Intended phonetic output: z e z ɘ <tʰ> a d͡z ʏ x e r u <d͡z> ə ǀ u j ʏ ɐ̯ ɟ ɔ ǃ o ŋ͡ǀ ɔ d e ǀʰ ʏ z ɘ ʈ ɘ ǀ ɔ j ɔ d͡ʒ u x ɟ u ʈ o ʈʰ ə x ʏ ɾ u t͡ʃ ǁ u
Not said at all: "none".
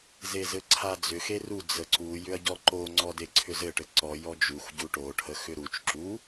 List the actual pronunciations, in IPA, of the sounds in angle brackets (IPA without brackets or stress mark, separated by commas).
ǀʰ, d͡z